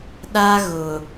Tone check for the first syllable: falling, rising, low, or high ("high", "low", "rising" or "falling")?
high